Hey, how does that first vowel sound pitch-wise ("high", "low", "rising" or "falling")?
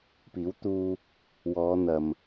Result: rising